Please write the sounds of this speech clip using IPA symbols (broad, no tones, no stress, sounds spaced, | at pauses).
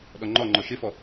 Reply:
ɗ ɔ ŋ͡ǃ ɔ ŋ͡ǃ ɔ ʃ ɪ f ɔ